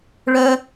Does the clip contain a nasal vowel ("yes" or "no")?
no